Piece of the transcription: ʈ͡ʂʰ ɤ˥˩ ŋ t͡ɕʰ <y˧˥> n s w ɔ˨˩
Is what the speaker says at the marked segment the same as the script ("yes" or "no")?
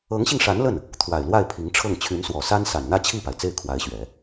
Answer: yes